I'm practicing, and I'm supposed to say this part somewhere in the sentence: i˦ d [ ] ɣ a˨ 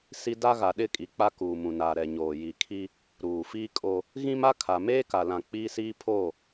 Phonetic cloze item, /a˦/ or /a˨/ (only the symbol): a˦